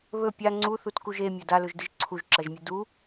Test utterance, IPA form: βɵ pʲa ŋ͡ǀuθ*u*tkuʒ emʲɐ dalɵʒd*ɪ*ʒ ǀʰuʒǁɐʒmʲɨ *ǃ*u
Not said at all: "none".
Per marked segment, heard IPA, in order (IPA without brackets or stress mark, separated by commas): u, ɨ, d